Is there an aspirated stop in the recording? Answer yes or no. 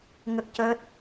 no